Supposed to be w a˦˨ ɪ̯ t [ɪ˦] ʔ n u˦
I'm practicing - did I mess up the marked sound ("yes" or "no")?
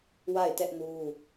yes